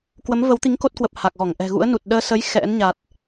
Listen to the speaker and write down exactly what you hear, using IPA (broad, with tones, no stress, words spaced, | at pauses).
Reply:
kwə˨˦mvə˨˦wt̪i˨˦ŋ ko˦˥t̚kwə˨˩p̚ ha˨˩k̚ɣɔ˧˩ŋ ʔɛ̤˨˩ɣṵ˧˥ə̯nu˨˩t̚ ɗəː˧sə˨˦j xɛ̰˧˥nɲa˨˩t̚